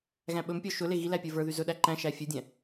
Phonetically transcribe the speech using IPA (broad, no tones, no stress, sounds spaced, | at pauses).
ɣ æ̃ ɓ ɵ m pʲ ɔ ʃ ɵ l e ɣ i l æ pʲ ə˞ v ə˞ ð y z ɵ ɗ æ ǃ æ̃ ʃ æ fʲ ɵ dʲ æ̃